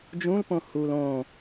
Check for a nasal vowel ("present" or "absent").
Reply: present